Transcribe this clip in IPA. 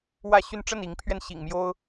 wä˥˨ɕy˥˨n ʈ͡ʂə˥˨ni˨˦ŋpʰɥɛ˧n ɕḭ˨˩ŋ mjo˦ʊ̯

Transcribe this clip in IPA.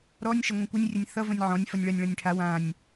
ɾɔnʲ ʃɐŋʷãkʷənʲ rʲɐnʲθʌ və̃nʲʕɔ̃nʲ fʌnʲɭɐnʲ ɭɐ̃nʲʈʰa wãnʲ

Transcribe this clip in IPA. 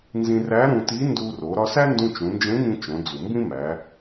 nzĩ˧ræ˧˥ɾũ˧ti˧˥ ndu˧ro˩˧ ɾɒ˧sæ˥ndũ˧ t͡ʃũ˩˧nd͡ʒẽ˧˥ŋĩ˧ t͡ʃõ˩˧d͡zu˩ mbĩ˥mæ˩˧

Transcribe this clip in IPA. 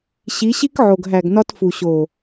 ɕi˨˦ɕi˦kʕo˨ɡ ɦæ˨ɡnɒ˧t fu˨ɕo˨

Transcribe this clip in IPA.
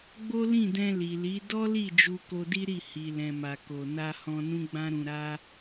ɡ͡bo˦lĩ˦˨dɛ̃˧ li˨li˨˦ dɔ˦li˦˨ d͡ʒu˧ko˧di˦ɾi˦˨ hi˨lɛ̃˨ma˨ ko˨na˧hɔ̃˧ nũ˦ɡ͡bã˦ɾũ˧ ɾa˦

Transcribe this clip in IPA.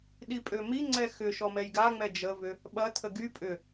ɗipʼømiŋ͡ǀɛ xʏʃɔ mɛjɡaŋ͡mɛ d͡ʒəvʏ | ɓɐtʰə ɡy pʼʏ

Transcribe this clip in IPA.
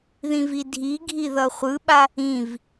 ðĩvidʱiɡʱi ðʌχʷɯɓa | ĩv

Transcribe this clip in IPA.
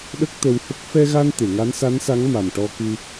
ɗə˦˥k̚t̪ə˧whə˦˥k̚ fɛ˧ɣa˧n t̪e˨˩˨ŋa˧˥nsa˧˥nsa˧˥ŋ ma˨˩mʈɔ˧kɨ˧

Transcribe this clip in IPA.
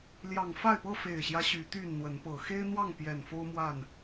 ljɑ˨˩ŋfa˥˨ɪ̯pɤ˥˨ fe˨˩ɪ̯ɕjä˦ ɕy˨˦t̪y˥˨nn̪wə˨˦npɤ˨˩ xe˦ɪ̯n̪wɑ˥˨ŋ pjɛ˨˩nfo˦ʊ̯mwa˥˨n

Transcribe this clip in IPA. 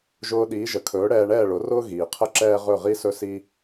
ʒʊː˧ɗiː˩˥ʒə˩ kʰɵː˩˥ɽɛː˧ɳɛː˥˩ɭʊ˩˥ rʊː˥ ɣiː˩qʰə˥˩ ǁɛː˥ʁɵ˥˩ʁi˥sɵ˥ si˥

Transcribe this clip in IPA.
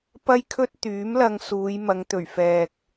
pɐ˥jkʰɵ˥t̚ t̪yː˨˥mlɐ˧ŋ suː˨˧jmɐ˨˧ŋ t̪ɵ˨˩ɥfɛː˨k̚

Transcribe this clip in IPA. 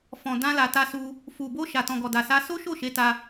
fɔ̃˨ dã˧la˨ta˧su˧ | fu˨bo˧ ʃa˨tɔ̃˨ɡɔ˨ da˨sa˧ so˦ʃo˦˨ʃe˨˦ta˧

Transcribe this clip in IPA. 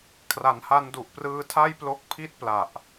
kʰra˩˦nha˧ndu˨˩ʔprɯː˧ tʰa˥˩jplo˦˥k̚ pʰi˥˩t̚pla˨˩ʔ

